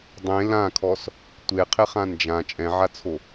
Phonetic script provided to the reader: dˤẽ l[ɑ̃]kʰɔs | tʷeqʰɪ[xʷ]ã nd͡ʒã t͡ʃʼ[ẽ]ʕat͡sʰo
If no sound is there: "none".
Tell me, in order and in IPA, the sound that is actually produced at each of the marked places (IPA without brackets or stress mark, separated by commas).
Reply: ã, χ, ɛ̃